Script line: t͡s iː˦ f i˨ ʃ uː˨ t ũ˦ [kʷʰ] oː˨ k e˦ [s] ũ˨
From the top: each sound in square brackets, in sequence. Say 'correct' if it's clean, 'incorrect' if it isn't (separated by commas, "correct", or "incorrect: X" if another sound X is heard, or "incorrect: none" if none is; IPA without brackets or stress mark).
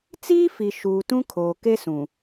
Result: incorrect: kʰ, correct